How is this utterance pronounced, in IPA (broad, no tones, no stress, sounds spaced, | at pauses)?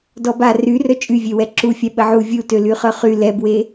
d ɔ b a r y r œ t͡ʃʼ y vʲ ø w ɛ ǁ u fʲ a ɓ ə ʕ u vʲ u t ø l y χ œ χ y l ɛ b w e